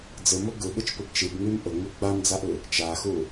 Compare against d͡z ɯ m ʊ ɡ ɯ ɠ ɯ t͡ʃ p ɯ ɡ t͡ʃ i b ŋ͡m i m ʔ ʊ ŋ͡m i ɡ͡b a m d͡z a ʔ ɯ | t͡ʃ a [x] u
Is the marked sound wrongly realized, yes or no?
no